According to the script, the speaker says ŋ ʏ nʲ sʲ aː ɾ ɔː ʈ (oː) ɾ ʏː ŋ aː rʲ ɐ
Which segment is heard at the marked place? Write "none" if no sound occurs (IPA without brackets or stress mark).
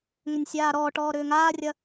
ɔː